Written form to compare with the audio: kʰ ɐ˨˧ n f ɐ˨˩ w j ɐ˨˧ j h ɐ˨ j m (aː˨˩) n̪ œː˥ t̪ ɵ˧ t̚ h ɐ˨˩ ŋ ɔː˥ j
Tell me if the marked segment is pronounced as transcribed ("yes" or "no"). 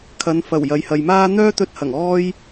no